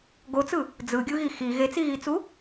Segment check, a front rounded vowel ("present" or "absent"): absent